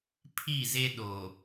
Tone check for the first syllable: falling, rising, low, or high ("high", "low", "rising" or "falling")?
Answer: falling